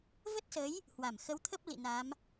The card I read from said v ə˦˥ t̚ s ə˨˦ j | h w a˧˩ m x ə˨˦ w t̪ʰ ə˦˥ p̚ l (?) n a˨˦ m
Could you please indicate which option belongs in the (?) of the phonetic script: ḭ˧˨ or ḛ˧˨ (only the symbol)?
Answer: ḭ˧˨